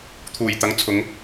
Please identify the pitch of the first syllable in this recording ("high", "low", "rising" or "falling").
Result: low